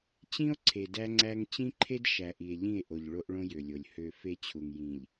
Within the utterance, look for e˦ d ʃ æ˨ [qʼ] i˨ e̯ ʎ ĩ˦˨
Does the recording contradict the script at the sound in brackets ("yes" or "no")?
yes